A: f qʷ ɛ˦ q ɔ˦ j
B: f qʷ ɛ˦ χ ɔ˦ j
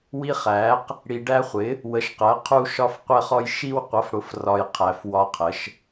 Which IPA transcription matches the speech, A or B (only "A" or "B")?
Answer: B